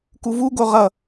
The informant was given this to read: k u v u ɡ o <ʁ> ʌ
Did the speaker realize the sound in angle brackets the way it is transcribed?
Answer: yes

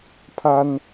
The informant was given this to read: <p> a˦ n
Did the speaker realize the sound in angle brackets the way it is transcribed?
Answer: no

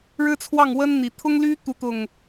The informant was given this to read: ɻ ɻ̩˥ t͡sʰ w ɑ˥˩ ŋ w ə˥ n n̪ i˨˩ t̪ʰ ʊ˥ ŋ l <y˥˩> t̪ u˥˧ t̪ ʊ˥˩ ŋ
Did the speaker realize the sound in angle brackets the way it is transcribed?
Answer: no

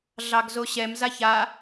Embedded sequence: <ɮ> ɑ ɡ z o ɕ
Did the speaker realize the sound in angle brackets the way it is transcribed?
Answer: yes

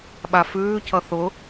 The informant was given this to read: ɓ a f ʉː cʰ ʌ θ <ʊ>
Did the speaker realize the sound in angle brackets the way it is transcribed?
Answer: yes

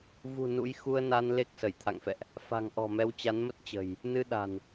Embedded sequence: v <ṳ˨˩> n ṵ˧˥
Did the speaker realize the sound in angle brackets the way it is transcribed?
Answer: yes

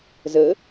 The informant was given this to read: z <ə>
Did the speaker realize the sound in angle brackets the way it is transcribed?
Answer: yes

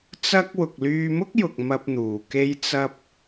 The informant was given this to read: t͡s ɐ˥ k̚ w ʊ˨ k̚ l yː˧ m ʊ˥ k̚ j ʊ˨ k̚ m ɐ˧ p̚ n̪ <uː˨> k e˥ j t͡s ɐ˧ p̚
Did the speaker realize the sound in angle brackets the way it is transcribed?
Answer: yes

